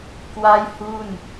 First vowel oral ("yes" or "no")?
yes